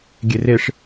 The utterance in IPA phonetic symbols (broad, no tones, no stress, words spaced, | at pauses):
ɡʲereʂ